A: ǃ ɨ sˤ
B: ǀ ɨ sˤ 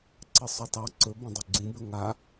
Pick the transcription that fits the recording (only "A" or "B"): B